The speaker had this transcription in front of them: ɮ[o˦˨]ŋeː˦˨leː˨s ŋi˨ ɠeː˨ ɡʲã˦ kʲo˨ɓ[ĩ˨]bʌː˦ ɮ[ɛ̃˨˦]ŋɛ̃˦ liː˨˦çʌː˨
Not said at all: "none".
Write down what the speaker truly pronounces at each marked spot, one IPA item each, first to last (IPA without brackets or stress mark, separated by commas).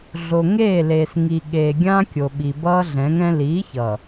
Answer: o˨, i˨, ɛ̃˨˦